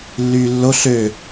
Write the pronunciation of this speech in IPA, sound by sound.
lː yː lː o ɬ ø

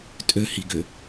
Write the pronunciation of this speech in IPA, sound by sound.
tʼ ø h i ɡ ʏ

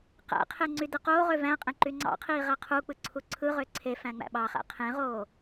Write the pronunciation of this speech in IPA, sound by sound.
q æ̰ qʰ e ŋ͡ǀ y d ɯ q oː ʁ ø v æ̃ qʼ ẽ ǃ y ŋ͡ǀ ɑ̰ qʰ iː ʁ æ qʰ u k͡p ɯ ǀʰ u ǀʰ ɯ ʁ ø ǀʰ e f æ̃ ŋ͡m æ̰ ɓ ɑ χ æ̰ qʰ ẽ ʁ oː

